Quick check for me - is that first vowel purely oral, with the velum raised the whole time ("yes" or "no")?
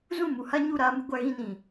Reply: no